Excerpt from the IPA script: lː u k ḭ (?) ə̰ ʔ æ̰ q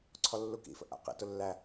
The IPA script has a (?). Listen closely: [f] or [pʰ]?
f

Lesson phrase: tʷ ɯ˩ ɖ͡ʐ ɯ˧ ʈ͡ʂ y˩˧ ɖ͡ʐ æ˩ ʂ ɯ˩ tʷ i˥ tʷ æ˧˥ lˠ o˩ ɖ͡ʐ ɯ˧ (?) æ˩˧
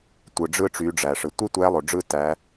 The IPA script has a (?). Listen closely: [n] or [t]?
t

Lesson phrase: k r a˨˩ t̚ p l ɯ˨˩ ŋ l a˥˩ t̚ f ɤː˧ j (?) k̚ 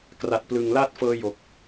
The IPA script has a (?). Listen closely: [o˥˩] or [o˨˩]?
o˨˩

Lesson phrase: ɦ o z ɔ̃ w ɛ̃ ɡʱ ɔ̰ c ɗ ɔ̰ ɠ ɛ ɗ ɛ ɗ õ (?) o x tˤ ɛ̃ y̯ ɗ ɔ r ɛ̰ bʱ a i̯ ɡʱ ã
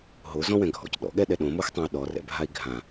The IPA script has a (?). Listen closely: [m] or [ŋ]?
m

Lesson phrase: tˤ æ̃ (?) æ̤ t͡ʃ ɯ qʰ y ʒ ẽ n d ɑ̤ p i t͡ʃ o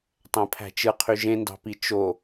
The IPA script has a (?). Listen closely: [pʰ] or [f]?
pʰ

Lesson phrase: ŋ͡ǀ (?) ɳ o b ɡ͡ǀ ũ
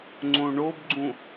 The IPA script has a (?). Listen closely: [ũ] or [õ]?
õ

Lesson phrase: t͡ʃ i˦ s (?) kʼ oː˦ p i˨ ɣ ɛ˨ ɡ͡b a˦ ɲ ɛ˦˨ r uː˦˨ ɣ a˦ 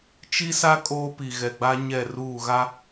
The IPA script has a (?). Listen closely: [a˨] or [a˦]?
a˦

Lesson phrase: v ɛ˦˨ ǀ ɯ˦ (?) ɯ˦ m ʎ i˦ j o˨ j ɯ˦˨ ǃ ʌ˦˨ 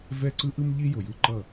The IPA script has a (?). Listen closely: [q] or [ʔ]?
ʔ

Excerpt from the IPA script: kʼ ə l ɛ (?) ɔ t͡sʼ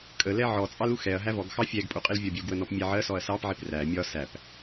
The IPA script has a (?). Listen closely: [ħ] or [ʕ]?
ʕ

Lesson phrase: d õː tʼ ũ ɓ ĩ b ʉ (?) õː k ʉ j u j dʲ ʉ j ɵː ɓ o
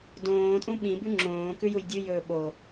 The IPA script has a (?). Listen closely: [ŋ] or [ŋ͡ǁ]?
ŋ͡ǁ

